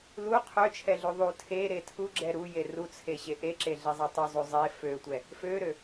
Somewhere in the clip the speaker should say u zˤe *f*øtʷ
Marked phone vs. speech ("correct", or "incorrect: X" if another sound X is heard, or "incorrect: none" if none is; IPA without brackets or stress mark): correct